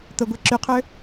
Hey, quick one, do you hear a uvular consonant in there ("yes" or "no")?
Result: yes